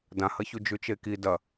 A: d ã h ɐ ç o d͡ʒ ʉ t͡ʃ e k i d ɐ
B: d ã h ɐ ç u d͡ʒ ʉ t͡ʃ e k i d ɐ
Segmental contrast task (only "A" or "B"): B